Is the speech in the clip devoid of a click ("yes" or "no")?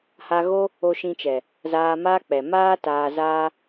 yes